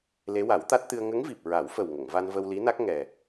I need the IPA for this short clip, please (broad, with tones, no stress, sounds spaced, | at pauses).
l e˧˥ w a˨˩˦ w t̪ a˦˥ t̚ t̪ ɨ˧ ə̯ ŋ ə˧˥ ŋ v i˨˩ p̚ ɹ a˨˩˦ w f ə˨˩ w ŋ ə˨˩˨ ŋ v a˧ n v ə˧ w l i˧˥ n a˦˥ k̚ ŋ ɛ˨˩